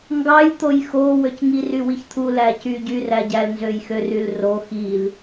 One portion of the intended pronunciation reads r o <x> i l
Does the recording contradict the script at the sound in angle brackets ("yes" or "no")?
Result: no